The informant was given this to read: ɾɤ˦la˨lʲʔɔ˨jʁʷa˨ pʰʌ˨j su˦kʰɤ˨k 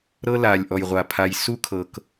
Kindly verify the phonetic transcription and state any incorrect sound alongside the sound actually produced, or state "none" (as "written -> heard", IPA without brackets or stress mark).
ʌ˨ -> a˨